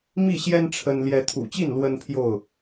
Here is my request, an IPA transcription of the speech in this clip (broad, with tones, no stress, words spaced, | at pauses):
mi˥˨ɕjɛ˦n ʈ͡ʂʰə˦n ljɛ˨˦t̪ʰṵ˨˩t͡ɕi˥˨n lwə˦npʰjo˥˨ʊ̯